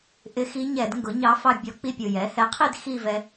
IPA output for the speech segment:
ʔ ɪ˧˥ x i˧˥ ɲ ɛ˧˩˧ d ŋ ɡ ʊ˩˥ ɲ ɑ˧˥ f ɑ˥˧ bʲ ɔ˧˥ k͡p i˥˧ pʲ ʊ˨˩ j ɛ˩˥ h ɛ˩˥ qʰ i˥˧ d x i˥˧ v ɛ˧

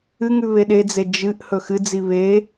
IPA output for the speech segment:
ɨ ŋ ʉ β e ɗ e d͡z e d͡ʒ ɨ ʔ h ɵ x ɨ d͡z i β e

